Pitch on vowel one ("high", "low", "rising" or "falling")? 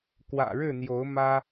low